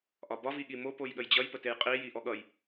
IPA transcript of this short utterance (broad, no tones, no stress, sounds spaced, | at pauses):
ʔ ɒ b ɒ v i ɠ i m o p o j ɠ ə j d͡ʑ ʌ j p ə t e j qʼ i j i ʔ ɔ ɠ ʌ j